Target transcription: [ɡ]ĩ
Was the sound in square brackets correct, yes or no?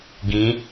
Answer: yes